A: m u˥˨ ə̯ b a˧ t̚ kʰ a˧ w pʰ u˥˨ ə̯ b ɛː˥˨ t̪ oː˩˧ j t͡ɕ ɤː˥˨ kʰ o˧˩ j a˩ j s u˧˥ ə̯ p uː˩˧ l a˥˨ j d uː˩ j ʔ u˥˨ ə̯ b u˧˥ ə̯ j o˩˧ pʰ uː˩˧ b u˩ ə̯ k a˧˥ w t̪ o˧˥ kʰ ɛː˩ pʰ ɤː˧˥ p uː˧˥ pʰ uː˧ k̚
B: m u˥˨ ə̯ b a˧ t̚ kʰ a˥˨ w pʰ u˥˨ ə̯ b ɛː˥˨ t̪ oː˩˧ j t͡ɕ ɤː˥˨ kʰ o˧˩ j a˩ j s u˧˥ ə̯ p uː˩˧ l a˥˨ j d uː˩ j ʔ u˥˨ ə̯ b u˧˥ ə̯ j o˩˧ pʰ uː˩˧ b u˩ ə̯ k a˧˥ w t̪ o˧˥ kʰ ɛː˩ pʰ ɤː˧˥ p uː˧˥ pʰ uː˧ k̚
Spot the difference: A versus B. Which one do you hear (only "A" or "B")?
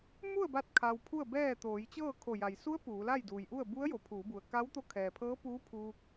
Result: A